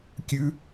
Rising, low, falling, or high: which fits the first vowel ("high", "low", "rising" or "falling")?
high